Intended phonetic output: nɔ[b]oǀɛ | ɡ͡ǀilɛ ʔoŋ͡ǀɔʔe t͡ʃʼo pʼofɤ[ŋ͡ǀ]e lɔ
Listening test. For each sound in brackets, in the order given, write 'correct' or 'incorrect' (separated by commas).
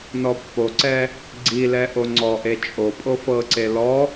incorrect, incorrect